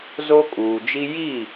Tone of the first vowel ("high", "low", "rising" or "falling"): high